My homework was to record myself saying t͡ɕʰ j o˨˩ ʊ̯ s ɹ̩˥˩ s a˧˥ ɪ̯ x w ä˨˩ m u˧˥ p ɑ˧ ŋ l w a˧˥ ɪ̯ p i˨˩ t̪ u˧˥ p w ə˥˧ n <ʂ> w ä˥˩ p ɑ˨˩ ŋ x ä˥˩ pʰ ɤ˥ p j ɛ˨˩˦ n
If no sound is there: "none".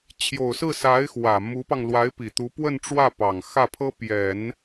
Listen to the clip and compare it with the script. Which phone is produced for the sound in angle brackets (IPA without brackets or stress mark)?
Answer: ʈ͡ʂ